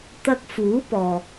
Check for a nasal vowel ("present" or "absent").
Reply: absent